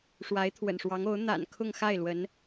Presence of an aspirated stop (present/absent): present